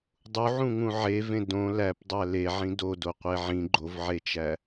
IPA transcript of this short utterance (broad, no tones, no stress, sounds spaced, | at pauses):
dˤ u ʕ ũ ŋ ũ ʕ e v ẽ d õ l æ p dˤ æ l e ʕ ĩ d o d o qʷ e ʕ ĩ ɡ͡ǃ o v ʕ e t͡ʃ æ